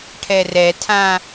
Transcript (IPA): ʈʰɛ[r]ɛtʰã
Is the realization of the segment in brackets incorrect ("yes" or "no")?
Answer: no